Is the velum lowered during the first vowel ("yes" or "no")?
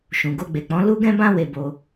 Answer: yes